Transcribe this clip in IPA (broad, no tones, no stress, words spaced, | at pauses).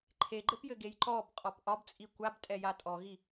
ǃʰeɡ͡ǃɘpjɘɡej ǃɔbqʼɔp ʔɒbt͡sʼi kʷabtʼɛja tʼɔɣi